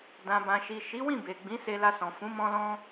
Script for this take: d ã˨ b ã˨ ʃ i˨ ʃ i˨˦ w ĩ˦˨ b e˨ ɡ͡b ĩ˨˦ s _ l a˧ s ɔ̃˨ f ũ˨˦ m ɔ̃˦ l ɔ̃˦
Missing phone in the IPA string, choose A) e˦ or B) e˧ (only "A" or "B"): B